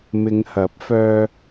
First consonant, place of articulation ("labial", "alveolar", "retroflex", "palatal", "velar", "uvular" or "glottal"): labial